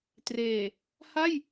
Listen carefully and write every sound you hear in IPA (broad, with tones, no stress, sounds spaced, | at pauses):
t r eː˨˩ | h a˥˩ j